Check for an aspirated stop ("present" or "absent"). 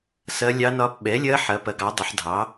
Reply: absent